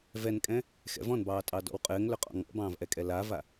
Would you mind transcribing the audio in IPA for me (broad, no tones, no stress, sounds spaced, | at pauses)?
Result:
v ɛ n kʼ ɛ̃ | x ɛ̰ v ɔ̃ n b ɑː tʼ ɑ d ɔ̰ w qʼ ɘː ŋ l ʏ qʼ ɔ̰ ŋ ɔ̰ b ɑ̃ː v ʔ ɛ kʼ ɛ l a v a